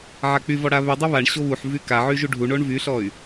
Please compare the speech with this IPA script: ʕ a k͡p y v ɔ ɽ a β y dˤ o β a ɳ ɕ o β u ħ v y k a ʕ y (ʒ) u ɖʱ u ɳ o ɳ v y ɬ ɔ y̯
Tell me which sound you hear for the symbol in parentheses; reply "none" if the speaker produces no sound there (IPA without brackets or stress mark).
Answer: ʒ